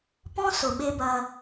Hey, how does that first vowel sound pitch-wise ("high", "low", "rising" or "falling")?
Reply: high